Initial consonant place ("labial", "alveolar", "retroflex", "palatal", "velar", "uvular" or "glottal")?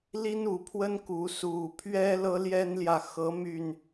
alveolar